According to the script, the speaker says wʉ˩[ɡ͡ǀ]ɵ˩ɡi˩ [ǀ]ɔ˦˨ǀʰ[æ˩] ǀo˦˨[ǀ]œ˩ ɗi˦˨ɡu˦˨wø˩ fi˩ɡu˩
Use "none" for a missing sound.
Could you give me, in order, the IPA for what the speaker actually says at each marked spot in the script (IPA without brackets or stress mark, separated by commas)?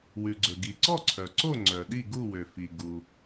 ɡ͡ǀ, ǀ, œ˩, ŋ͡ǀ